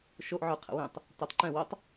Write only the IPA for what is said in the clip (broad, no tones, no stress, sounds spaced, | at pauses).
ʃ o ʔ ʕ ə˞ qʰ ə̰ w ẽ tˤ | t ə˞ tˤ ǃ ɛ̃ w o tˤ